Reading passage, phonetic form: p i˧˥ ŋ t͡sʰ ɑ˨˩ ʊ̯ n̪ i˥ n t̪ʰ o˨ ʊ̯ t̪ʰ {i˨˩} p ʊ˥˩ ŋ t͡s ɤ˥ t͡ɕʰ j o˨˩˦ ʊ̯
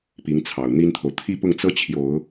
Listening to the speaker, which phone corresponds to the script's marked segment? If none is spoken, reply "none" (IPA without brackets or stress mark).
i˥